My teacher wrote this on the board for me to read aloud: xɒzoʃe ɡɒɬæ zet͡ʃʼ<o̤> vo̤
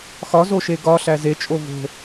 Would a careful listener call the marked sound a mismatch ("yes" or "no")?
yes